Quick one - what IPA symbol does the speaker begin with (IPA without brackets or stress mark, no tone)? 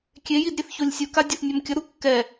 kʲ